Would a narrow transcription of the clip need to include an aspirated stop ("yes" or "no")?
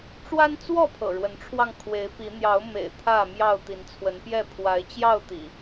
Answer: yes